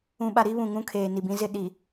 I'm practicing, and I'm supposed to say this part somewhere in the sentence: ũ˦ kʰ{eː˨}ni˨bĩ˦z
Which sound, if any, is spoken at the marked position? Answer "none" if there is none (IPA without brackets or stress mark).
eː˨